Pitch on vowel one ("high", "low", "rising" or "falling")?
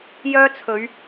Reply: high